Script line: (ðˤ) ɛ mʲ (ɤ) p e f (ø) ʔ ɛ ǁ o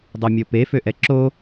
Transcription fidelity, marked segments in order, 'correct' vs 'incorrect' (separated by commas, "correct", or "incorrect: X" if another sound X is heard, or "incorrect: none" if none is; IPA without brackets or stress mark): incorrect: dˤ, correct, correct